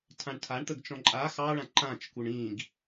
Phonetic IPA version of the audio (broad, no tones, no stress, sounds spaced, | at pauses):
tʰ ã ɳ tʰ a ɳ t̪ ə ɡ t͡ʃ ɔ̃ ǃʼ a x ɑ ɭ ã ǃ ã t͡ʃ k u ɳ ĩ ɡ